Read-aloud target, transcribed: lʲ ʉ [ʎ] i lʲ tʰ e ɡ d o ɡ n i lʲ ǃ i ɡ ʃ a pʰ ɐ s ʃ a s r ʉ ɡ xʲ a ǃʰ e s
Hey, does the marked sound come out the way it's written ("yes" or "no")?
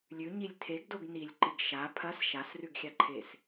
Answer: no